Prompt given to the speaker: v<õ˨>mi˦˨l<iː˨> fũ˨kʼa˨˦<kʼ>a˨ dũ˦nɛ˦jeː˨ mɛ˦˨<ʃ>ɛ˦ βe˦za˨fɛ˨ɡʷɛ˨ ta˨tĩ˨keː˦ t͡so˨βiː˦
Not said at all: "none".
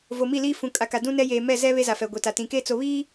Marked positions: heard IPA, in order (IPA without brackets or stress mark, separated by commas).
o˨, iː˦, k, z